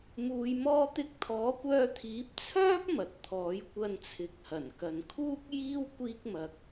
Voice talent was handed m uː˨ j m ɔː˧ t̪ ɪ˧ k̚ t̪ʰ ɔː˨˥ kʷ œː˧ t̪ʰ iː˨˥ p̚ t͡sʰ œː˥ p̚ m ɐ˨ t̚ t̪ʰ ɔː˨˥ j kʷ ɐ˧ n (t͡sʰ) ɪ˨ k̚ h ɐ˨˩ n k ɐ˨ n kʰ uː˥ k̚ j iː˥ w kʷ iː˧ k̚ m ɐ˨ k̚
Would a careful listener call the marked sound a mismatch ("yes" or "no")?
no